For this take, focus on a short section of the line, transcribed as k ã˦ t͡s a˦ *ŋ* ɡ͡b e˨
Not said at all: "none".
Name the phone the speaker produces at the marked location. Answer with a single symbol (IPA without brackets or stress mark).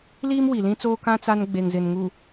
n